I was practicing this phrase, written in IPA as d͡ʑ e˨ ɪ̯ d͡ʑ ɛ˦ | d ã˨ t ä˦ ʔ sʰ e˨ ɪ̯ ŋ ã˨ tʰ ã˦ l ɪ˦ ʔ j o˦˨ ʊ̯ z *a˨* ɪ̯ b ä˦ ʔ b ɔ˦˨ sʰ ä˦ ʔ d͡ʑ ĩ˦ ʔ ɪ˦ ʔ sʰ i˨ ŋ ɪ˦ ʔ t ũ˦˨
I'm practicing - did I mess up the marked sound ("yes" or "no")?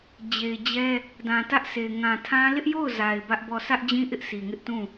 no